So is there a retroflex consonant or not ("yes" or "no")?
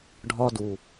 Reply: yes